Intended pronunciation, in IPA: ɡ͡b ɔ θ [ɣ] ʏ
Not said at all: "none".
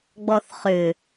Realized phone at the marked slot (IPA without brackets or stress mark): χ